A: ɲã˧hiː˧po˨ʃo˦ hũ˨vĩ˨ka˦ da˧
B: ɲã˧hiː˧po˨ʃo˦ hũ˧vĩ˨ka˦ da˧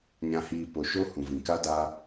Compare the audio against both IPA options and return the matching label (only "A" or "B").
A